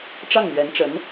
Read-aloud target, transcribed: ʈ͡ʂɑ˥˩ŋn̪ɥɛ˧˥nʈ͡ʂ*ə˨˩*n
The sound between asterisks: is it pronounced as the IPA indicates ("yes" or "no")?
no